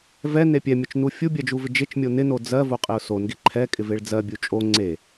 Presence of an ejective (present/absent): present